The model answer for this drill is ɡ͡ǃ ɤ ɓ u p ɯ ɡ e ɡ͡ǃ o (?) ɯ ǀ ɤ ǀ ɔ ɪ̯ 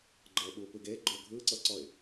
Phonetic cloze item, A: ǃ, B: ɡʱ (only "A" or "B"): B